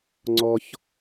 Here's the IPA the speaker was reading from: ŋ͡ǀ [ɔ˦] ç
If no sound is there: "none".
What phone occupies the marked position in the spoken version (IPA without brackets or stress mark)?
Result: ɔ˦